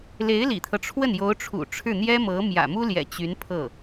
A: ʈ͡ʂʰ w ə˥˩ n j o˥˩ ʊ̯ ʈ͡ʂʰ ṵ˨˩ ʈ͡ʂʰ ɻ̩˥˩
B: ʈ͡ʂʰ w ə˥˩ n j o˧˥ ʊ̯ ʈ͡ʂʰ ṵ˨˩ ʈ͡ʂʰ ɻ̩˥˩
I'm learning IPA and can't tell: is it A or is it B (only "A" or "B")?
B